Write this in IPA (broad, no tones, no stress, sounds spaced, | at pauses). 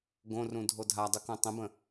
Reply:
ɡ õ r ũ dʱ o dʱ a dˤ u k õ tˤ ə̃ b ə̃